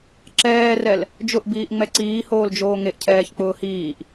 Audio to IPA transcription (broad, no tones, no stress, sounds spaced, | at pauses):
ǁ ɛː r ɛ l | d͡ʒ ʊ ʔ b iː ʔ ŋ͡m ɛ ǀ iː h oː l d͡ʒ oː ŋ e ʔ cʰ ɛː ç k͡p ʊː h iː ʔ